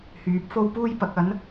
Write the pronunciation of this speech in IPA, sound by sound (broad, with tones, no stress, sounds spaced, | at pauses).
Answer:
h yː˨˥ p̚ f o˥ w p uː˥ j p ɐ˨˥ k̚ ɐ˨˥ n